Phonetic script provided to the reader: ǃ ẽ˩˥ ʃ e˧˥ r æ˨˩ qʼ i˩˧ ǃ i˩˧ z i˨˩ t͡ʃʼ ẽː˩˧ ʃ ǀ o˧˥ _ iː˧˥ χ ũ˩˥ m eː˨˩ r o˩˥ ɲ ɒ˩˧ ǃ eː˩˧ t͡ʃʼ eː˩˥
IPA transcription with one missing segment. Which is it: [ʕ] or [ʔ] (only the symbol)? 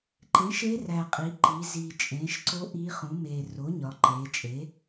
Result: ʔ